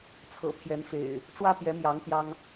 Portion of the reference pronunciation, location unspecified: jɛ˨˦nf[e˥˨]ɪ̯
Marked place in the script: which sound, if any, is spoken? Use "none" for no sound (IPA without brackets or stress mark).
ḛ˨˩